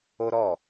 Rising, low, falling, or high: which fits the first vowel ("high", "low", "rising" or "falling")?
high